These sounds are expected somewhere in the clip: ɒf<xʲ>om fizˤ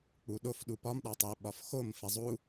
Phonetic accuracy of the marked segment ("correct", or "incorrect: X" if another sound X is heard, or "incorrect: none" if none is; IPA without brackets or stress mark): incorrect: x